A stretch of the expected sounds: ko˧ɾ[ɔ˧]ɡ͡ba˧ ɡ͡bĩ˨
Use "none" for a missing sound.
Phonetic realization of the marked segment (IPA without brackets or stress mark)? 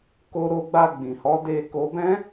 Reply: o˧